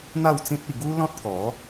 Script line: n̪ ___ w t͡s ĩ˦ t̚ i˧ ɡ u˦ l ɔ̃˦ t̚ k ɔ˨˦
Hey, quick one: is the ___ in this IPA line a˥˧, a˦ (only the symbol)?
a˥˧